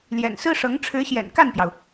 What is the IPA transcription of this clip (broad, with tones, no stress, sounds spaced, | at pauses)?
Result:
l j ɛ̰˨˩ n s ɹ̩˥ ʂ ɤ˧˥ ŋ ʈ͡ʂʰ ɻ̩˧˥ ɕ j ɛ̰˨˩ n k a˥˩ n p j ɑ˩ ʊ̯